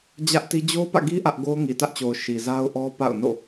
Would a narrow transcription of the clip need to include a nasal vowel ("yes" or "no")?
no